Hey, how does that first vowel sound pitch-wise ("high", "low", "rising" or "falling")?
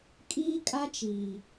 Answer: high